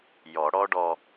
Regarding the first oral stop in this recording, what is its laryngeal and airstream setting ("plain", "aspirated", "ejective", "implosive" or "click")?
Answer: plain